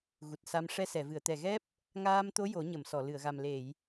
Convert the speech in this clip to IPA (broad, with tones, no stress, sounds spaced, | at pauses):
ɣ u˨˩ t̚ s a˧ m ʂ ɛ˧ s ɛ˨˩˨ v ɨ˨˩˨ ə̯ t̪ ɛ˨˩ ɣ ɛ˦˥ p̚ | ŋ aː˧ m t̪ o˧˥ j o˨˩˦ ɲ ə˨˩˨ m s ɔ˨˩˨ l ɨ˨˩˨ ə̯ ɣ a˨˩ m l e˨˩˨ j